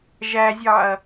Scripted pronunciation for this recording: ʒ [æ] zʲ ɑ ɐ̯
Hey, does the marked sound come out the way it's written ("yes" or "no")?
yes